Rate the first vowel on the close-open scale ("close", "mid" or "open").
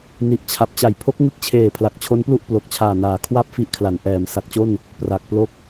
close